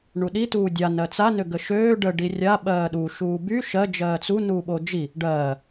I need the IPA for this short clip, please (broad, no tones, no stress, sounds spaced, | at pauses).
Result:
ɳ u ɗ i t uː dʲ a n ɜ t͡s a n ø ɡ ə ʃ øː ɖ ə ɖ i rʲ a ɓ ɜː ɗ u ʃ uː b y ʃ ɜ d͡ʒ ɜː t͡s u n uː ɓ o d͡ʒ i | ɖ ɜː